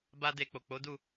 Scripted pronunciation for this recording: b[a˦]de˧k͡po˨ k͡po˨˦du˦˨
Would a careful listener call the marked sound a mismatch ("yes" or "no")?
no